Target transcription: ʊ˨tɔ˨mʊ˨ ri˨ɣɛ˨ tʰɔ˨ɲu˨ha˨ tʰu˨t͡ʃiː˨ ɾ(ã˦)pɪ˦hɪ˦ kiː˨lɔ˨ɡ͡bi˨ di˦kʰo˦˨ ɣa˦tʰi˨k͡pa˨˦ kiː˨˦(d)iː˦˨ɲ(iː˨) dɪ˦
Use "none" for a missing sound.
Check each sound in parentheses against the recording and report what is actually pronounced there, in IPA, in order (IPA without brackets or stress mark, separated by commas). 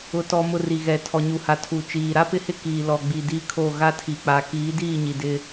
a˦, d, i˨